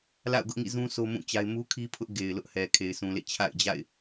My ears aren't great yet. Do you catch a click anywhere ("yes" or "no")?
no